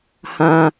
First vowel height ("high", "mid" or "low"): low